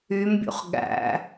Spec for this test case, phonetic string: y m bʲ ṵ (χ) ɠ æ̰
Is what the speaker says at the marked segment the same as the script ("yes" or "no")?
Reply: yes